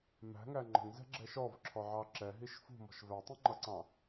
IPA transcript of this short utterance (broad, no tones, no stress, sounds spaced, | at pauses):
m æ̤ ŋ æ ŋ͡ǃ ə̤ ŋ z ɛ̤ ɡ͡ǁ ɛ ʃ ɔ v ǁʰ ɔ ʕ ɑ ǁ ɛ ɦ i ʃ f ṳ m ɔ̤ ʃ v æ tˤ ĩ ŋ͡ǃ ʌ ǀ ɑ̃